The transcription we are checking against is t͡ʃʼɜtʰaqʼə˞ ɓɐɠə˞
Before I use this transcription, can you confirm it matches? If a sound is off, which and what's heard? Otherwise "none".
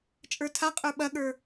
ɜ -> ə˞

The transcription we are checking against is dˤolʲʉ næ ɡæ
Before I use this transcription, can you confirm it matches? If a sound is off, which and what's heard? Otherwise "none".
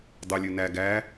none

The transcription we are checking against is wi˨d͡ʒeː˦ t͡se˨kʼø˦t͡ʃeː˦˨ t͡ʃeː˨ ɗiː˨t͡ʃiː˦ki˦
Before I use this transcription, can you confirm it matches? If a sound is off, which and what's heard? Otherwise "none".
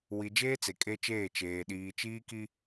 ø˦ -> e˦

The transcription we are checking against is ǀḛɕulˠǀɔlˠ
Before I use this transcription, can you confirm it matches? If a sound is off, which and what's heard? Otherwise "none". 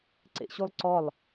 none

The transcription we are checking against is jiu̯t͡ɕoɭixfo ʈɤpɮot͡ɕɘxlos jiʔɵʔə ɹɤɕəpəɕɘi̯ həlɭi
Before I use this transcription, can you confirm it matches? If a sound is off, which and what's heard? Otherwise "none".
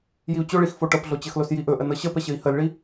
ɹ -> n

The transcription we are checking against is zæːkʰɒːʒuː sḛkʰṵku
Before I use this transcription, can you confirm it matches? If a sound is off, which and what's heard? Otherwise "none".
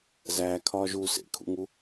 k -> ŋ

